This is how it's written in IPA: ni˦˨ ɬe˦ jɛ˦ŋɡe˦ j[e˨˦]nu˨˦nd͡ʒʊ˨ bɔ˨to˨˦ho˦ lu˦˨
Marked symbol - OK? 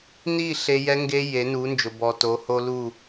yes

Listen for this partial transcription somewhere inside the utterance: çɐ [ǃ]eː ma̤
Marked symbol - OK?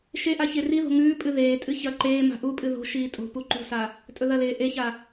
yes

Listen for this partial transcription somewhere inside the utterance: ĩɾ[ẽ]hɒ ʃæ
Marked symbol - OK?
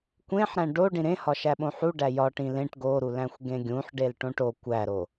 yes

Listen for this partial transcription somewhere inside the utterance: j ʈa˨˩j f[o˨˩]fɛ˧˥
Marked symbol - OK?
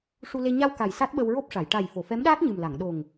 no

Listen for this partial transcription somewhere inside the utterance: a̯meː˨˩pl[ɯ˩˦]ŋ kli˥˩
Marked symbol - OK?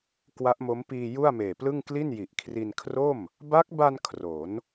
no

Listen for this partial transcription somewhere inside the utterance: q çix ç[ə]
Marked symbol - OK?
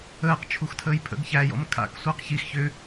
no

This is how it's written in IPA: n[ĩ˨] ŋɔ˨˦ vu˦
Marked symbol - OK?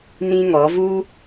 no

